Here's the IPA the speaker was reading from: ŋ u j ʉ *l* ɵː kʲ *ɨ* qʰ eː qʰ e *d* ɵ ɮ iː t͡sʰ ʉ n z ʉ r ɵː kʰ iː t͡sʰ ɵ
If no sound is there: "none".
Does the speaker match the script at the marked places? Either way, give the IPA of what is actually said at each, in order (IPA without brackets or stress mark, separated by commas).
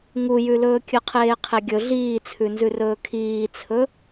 l, ɨ, ɡʲ